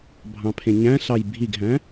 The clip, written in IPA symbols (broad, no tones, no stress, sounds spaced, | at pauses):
bʱ ɑ̃ pʰ ẽ ɲ æ̃ ɬ ɑ j bʱ i ɡ ɦ æ̃